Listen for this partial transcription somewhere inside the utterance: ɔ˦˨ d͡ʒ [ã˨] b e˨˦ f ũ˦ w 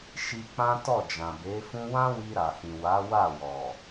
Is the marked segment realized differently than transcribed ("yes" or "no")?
no